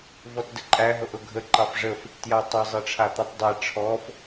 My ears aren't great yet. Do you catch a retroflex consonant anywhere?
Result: yes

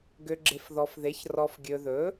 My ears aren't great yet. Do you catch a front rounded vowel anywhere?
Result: yes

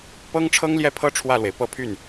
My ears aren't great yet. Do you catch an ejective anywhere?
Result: no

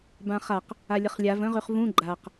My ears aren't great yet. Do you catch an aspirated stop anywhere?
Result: no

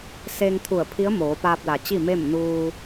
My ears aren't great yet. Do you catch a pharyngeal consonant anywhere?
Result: no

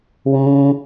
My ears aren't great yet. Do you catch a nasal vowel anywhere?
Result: yes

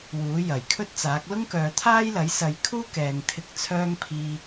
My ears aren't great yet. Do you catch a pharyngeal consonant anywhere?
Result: no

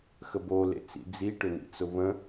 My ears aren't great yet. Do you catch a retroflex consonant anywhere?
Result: yes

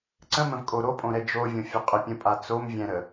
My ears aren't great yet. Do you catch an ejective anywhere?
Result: yes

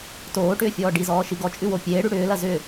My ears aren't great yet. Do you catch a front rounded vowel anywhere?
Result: yes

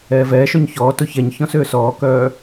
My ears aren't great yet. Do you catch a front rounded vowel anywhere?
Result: yes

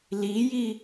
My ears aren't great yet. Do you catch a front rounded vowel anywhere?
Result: no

